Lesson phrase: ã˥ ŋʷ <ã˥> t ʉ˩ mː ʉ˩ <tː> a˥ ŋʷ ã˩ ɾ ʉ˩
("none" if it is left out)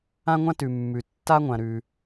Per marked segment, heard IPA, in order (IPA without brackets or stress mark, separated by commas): ã˥, tː